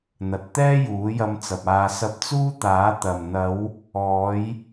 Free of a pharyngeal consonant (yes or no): yes